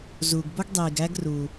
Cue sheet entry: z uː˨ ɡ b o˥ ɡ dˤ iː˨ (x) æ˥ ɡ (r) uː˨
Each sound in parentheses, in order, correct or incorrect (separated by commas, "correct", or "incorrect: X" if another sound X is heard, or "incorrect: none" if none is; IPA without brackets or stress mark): incorrect: ɡ, correct